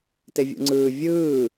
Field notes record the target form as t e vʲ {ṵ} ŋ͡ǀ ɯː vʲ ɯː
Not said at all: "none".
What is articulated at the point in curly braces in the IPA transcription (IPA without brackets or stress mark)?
ṵ